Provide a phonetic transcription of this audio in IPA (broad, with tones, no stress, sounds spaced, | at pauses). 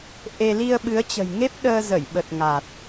ʔ e˧ l i˧ ə̯ ɓ ɨ˨˦ ə̯ t͡ɕ ə̤˨˩ j ŋ e˦˥ p̚ ɗ əː˧ z ə˧˩ j ɓ ə˨˩ t̚ ŋ a˨˩ t̚